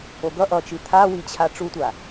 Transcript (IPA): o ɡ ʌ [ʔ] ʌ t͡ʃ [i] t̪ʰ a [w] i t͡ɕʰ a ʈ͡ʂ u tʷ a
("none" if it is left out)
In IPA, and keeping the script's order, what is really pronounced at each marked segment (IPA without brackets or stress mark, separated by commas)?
ʔ, i, w